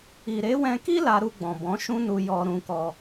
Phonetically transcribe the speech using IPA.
i˨ ɾ e˨˦ w ɛ̃˧ k i˦ l a˧ ɾ u˧ ɡ͡b ɔ̃˨ b ɔ̃˨˦ ʃ ũ˦ n u˧ j ɔ˧ ɾ ũ˧ k ɔ˧

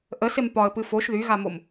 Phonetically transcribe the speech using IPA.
ʔ ə s e m p ɒ ə̯ p ɨ f o ʃ ð y ɣ a m o m

